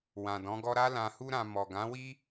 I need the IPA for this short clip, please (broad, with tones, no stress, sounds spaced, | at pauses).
w ã˨ d ɔ̃˨˦ ɡ ɔ˦ ɾ a˦ l ã˧ h u˦ ɾ ã˧ m ɔ˨ ɡ ã˨˦ w i˦